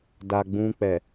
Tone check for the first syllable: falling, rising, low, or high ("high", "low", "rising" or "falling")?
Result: low